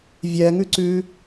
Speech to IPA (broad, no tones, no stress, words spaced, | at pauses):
vʲɛŋʉǀʉ